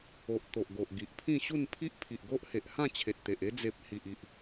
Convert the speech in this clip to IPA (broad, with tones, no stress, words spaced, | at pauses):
o˨ʔ t̪o˨ʔɡo˨ʔ ɡi˨ʔpʰĩ˥˧ɕu˥˧n pʰi˦ʔpʰi˨ʔɡo˦ʔhe˨ʔ hã˥˧t͡ɕʰe˨t̚t̪e˨ʔ e˧d͡ze˨p̚ hi˨ʔi˨ʔ